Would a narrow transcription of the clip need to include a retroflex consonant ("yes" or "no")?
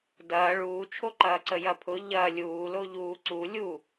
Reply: yes